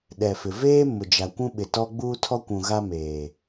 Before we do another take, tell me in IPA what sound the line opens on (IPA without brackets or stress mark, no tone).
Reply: ɗ